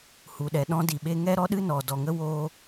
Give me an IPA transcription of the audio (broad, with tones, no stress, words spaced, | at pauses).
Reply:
hu˨ɗɛ˨ ɗɔ̃˦di˨ɓe˦ ŋɛ˦ɾɔ˦ɗɨ˦ nɔ˨ dɔ˨ŋə˦ woː˦